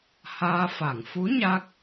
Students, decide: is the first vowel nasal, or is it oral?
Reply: oral